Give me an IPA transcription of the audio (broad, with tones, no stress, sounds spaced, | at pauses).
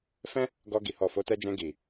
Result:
f ɛ̃˦ | ɡ ɔ˧ ɡ i˨ h ɔ˨ f o˨˦ t ɛ˧ d͡ʒ ɛ̃˧ ɡ i˨